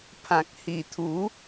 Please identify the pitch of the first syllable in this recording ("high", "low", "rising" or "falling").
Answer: low